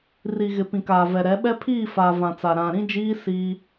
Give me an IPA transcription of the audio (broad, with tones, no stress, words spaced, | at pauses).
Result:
ri˨ɣɪ˨ pĩ˨kaː˨vɛ˨ɾɛ˨˦ ɓɛ˦pʰiː˦˨faː˨ vã˨t͡sa˨ ɾã˨ɾĩ˦d͡ʒiː˦ siː˦